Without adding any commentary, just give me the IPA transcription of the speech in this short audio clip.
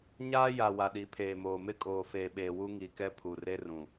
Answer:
ɲaː˦ja˨ wa˨ɗi˨˦pʰeː˨moː˨ mɪ˦kʼoː˨feː˨ɓeː˨ wu˦ŋi˨kɛ˦ pʰu˨re˦rũ˨

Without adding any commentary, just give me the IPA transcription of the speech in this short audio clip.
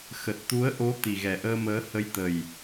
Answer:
xə˨˩t̚t̪u˨˦ə̯ʔo˨˦ t̪i˨˩ɣɛ˨˩ʔəː˧məː˨˦ hə˨˦jt̪ə˨˩j

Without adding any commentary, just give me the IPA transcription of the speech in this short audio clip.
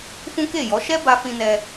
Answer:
fũ˦ke˦˨jɔ˨˦ ʃɛ˦ba˧ fĩ˧nɛ˧

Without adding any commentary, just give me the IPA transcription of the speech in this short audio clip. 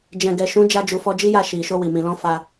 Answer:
d͡ʒɛ̃˨ɡɛ˨ ʃũ˨˦d͡ʒa˧d͡ʒu˨ fɔ˧d͡ʒi˦ja˦˨ ʃi˨ ʃo˧wi˨mĩ˨lɔ̃˧ fa˧

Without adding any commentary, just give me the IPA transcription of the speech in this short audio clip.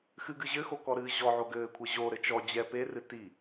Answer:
xɨɡɨ ʑɘxokɔɾɨː ʑɔʕo ɡɘːkʷʰɘ ʑoɾɘ t͡ʃɔd͡ʑɛ perɨ ti

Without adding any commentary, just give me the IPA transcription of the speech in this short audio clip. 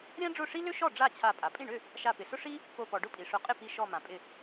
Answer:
ɾʲã˥ɖ͡ʐʊ˥˩ʂi˥ lʏ˥ʃɔ˥˩ ɖ͡ʐa˥˩t͡ɕʰa˧˩ pʼa˩pʼĩ˥˩ɳʏ˥˩ | ʃa˧˩pɪ˩sʊ˥ʂi˥ | po˧˩pɔ˩ ɖʊ˥pʼi˩ʂʊ˧˩ qʼɪ˥˩pi˧˩ʃɔ˧˩ mã˩pʼɪ˧˩

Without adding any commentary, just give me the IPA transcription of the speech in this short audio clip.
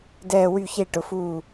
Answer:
dɛː˥˧wy˥˧çe˥˧ ʈʊ˩˧fuː˧˩

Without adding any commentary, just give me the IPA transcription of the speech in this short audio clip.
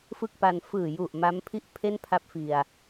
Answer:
fɯ˥˩k̚pa˧n fɯː˨˩ju˨˩ʔ ma˦˥mpʰi˥˩ʔ pʰe˥˩n pʰa˦˥p̚fi˨˩a̯

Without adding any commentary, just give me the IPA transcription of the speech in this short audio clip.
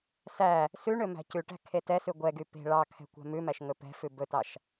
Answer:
sæ | sʉɳø mæ̤cʉʈæ̤ kʰetɛsʉ ɡʷɛɡy pe̤ ɭɑkʰɛ̤ kʷæ̤mʉmæʃ ŋɵpɛ̤fʉ bɵtɑʃ

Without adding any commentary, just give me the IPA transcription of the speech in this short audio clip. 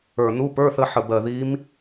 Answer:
ə˞˧˩ nu˧˥˧pə˞˧˥˧θə˧˥ħə˧˩ bɜ˧˩ði˧˥m

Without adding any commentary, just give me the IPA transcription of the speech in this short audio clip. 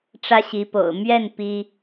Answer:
ʈ͡ʂä˥ɕi˧˥po̰˨˩ʊ̯ mɥɛ˥˩n pi˥

